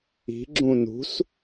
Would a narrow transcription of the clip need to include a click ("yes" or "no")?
yes